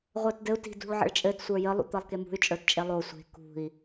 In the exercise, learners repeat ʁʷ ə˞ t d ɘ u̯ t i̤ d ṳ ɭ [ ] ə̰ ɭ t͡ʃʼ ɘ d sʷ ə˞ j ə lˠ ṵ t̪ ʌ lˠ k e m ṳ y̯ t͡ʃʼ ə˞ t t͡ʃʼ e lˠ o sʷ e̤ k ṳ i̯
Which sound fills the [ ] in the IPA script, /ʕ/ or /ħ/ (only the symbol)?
ʕ